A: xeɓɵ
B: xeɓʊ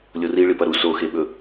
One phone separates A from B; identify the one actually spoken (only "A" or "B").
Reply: A